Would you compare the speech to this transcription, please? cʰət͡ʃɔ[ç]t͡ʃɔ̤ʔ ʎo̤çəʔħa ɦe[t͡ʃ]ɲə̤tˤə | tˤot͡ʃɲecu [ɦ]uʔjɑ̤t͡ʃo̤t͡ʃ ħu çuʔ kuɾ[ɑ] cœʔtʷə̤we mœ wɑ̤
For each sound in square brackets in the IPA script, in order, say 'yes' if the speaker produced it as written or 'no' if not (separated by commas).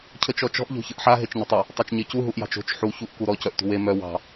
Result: no, yes, yes, no